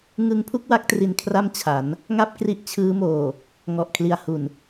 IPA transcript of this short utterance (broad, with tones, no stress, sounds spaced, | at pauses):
ŋ ɯ˦˥ ŋ pʰ u˦˥ k̚ w a˦˥ k̚ t r i˧ n kʰ r a˥˩ m t͡ɕʰ a˩˦ n | ŋ a˦˥ p̚ k r i˦˥ ʔ t͡ɕʰ ɯː˦˥ m oː˨˩ | ŋ ɔ˨˩ ʔ kʰ l i˨˩ a̯ h u˨˩ n